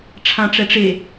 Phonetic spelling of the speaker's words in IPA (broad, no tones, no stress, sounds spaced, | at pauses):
ʈ͡ʂʰ ã ʈ͡ʂ ɛ ʈ͡ʂ e